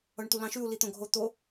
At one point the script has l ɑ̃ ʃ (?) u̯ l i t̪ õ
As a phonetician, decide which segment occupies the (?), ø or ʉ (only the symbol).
ʉ